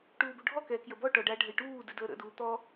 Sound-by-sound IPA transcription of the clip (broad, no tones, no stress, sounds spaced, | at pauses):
ʈ uː b u ɖʱ ɔ k ɛː k j ə b ɔ ʈ ɔ ɖ a ɖʱ ə j ʈ uː d ɨ d əː ɾ ə̰ d uː t̪ ɔ